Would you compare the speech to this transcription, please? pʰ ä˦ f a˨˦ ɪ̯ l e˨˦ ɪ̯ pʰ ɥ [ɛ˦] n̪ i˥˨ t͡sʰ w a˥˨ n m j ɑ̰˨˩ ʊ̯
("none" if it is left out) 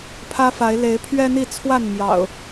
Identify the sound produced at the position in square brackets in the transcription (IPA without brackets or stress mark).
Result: ɛ˦